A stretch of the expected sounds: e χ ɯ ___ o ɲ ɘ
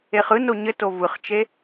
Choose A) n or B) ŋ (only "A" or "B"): A